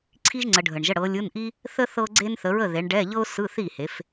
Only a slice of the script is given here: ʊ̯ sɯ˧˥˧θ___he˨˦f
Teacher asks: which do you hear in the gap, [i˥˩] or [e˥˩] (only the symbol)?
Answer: i˥˩